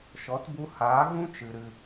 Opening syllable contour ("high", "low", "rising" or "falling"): rising